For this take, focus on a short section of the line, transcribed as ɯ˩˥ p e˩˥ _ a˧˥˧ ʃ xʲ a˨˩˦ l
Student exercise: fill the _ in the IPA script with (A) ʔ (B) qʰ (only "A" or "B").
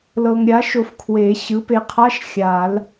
B